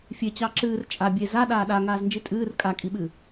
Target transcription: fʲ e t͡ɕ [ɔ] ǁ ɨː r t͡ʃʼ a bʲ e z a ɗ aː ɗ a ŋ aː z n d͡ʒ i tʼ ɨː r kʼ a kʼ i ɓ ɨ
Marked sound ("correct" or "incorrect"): incorrect